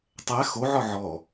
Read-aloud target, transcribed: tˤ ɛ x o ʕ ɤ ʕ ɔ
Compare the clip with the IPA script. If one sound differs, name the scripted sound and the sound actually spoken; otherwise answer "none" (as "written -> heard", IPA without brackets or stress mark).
ɤ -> ɔ